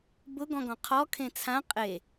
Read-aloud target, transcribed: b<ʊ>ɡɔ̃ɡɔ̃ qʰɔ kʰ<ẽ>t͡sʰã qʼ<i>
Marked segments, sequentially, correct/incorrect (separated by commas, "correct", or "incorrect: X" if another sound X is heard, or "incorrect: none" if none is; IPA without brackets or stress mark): correct, correct, incorrect: e